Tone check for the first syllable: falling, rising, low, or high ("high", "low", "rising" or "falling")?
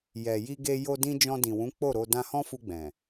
low